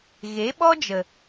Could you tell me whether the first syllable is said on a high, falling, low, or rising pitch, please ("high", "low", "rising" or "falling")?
rising